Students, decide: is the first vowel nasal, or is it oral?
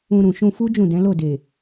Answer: nasal